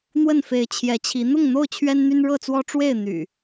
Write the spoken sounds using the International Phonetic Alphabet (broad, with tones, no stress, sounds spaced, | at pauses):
n̪ w ə˥˨ n f e˨˦ ɪ̯ t͡ɕʰ j ɛ˨˦ t͡ɕʰ i˨˦ n̪ ʊ˥˨ ŋ n̪ o˥˨ ʊ̯ t͡ɕʰ ɥ ɛ˦ n n̪ y˦ n ɻ ɤ˥˨ t͡s w ɔ˦ ʈ͡ʂ w e˥˨ ɪ̯ n̪ y̰˨˩